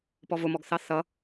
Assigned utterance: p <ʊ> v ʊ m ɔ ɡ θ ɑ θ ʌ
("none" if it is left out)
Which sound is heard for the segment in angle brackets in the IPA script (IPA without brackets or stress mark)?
ɔ